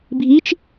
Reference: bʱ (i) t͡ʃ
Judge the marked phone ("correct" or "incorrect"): correct